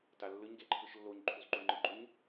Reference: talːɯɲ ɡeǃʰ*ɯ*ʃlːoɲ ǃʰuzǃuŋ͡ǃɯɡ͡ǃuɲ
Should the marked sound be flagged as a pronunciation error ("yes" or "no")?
no